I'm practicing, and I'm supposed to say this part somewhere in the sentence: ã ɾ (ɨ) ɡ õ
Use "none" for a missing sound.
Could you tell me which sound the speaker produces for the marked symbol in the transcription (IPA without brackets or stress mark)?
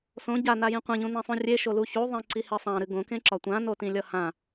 ɨ